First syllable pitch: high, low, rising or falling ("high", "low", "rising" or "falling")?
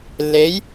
rising